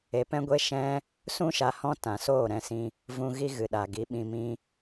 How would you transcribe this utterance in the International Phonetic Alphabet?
e˧ p ɛ̃˦ ɡʷ e˦ ʃ ɛ̃˦ | s ũ˦ ʃ a˧ h ɔ̃˦ t ã˧ s oː˦˨ ɾ ɛ̃˦˨ s ĩ˧ | v ũ˧ ɣ i˧ ɣ ɨ˨ ɗ a˨ ɡ i˨˦ ɓ ĩ˧ m ĩ˦

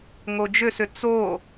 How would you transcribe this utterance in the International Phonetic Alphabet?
ŋ o d͡ʒ ʏ s ʏ t͡s o

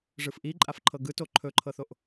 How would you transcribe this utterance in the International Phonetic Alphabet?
ʐ ɯ f ʔ i ǃʼ a f ǃʰ ɤ ɡ ɯ t o ǃʰ ɵ ǃʰ ɤ θ o ʔ

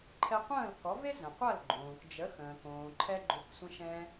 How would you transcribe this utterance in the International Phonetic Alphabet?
ǃʰ ɛ˧ qʷ ə̃ː˥˩ l k ɔ˩˥ v e˥ z ə̃˩ qʷ ɐ˥˩ l ɡ͡ǃ õː˩ k d͡ʒ ə˩˥ x ə̃ː˩ k õː˩ ǃʰ ɛ˧ ɡ͡ǃ ʏ˩˥ k sʷ ə̃˧ ʃ ɛ̃˧

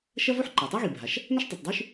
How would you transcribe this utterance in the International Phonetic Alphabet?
ʃ ɐ˥ v o˥ ħ ǃ a˩ tˤ a˥ ɣ i˩ bʱ a˩ ʃ | n ɐ˥ ʃ tˤ u˩ tˤ dˤ ʉ˥ ʃ

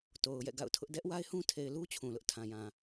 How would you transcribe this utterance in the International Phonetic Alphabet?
t o˨ ʊ̯ j ɛ̰˦˨ ɡ a̰˦˨ ʊ̯ tʰ ʊ˦ ʔ d ɛ˦ ʔ w a˦ ɪ̯ h ũ˦ tʰ e˨ ɪ̯ l u˦ t͡ɕʰ ũ˨ l ʊ˦ ʔ tʰ ã˨ j ã˨

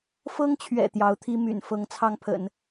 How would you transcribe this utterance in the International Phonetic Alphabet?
f ɤ˥ ŋ t͡ɕʰ ɥ ɛ̰˨˩ t̪ j ɑ˧˥ ʊ̯ t̪ʰ i˥ m y̰˨˩ n f ɤ˧˥ ŋ t͡sʰ ɑ˥ ŋ pʰ ə̰˨˩˦ n

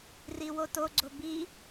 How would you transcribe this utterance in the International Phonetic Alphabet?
r i w o t o ɡ͡ǀ o b i

